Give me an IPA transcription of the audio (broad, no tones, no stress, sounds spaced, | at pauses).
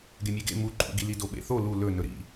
ɡ e mʲ e ɡ ḛ m u ǃʼ ṵ ɡ i l i d o ɓ ḛ θ o l u l ɵ n ɵ ɾ ḭ